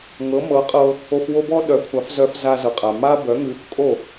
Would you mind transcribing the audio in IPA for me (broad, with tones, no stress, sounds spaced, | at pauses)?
ŋ ɤ˩˥ m ɤ˩˥ qʼ ɤ˧ | o˧ f w o˥ b ɔ˥ ɗ œ˩˥ kʷʰ a˩˥ f z œ˧ f z a˧ z ɤ˩ qʼ a˩ m a˥ b œ˩˥ ŋ ʉ˩˥ f kʼ o˥˩